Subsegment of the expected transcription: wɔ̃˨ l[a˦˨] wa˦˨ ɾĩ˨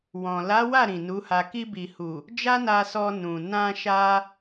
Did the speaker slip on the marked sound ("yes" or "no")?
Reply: yes